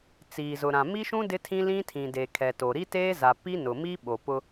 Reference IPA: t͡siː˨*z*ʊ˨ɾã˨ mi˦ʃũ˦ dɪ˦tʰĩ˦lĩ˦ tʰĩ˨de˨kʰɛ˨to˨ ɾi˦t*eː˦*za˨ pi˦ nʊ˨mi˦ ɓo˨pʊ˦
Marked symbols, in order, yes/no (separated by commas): yes, yes